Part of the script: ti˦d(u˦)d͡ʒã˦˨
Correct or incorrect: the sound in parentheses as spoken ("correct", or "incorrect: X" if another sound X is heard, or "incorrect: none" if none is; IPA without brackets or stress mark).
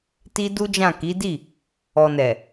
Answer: correct